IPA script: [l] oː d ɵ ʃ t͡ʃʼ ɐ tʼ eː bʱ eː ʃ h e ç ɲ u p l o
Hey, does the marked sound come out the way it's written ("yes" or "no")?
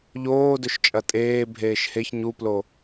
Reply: no